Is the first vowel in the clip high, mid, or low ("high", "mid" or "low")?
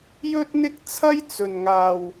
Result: mid